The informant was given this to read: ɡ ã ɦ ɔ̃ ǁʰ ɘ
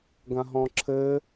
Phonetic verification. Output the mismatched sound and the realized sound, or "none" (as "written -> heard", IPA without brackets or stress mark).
none